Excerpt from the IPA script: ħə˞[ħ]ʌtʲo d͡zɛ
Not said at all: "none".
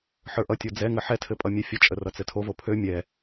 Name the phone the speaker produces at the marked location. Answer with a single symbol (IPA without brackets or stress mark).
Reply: ʔ